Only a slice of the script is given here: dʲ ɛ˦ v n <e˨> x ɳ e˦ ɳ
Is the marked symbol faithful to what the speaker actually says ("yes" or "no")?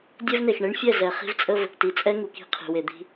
yes